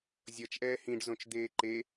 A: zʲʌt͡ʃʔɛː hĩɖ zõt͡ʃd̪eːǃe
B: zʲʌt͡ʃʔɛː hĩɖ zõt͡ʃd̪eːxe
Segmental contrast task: A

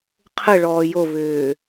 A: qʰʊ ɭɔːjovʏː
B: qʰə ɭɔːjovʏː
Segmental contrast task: B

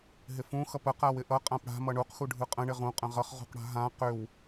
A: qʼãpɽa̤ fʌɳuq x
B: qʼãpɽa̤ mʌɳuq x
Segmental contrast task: B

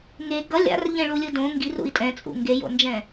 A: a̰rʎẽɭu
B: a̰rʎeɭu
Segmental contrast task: A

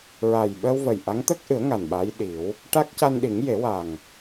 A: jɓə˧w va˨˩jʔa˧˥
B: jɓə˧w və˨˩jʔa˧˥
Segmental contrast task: B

